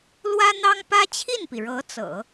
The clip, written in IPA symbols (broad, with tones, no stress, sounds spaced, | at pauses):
l w ä˥ n̪ ɑ˥ ŋ p ä˥ t͡ɕʰ i˥˩ n p i˩ ɻ ɤ˧˥ t͡s ɤ̰˨˩˦